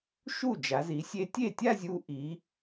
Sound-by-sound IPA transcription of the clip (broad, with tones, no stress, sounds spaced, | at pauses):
ʃ u˥˩ d͡ʒ a˩˧ z i˩˧ sʲ e˧ tʲ e˥˩ tʲ a˥˧ zʲ u˧ ʔ i˩˧